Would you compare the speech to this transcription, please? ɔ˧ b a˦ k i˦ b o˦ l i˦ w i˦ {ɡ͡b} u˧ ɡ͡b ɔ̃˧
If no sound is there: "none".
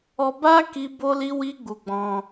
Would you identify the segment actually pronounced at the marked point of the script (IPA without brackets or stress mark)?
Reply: ɡ͡b